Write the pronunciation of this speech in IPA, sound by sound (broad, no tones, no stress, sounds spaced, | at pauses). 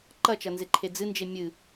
ǃ ɐ t͡ʃ ɐ n z e ǃʰ e d͡z ɨ n d͡ʒ e mʲ ɨ